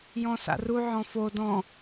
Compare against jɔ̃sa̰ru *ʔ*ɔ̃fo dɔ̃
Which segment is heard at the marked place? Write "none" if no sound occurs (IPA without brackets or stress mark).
ʕ